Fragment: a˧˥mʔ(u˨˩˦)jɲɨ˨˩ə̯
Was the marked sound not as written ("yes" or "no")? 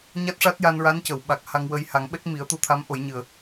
yes